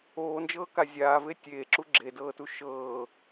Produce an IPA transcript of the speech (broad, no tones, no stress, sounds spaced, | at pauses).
oː n d͡ʒ ɤː k a zʲ aː v e tʲ eː ǁ u ɡ͡ǁ e d ɤː t u ʃ ɤː